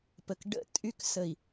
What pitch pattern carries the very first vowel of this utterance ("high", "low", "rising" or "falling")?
low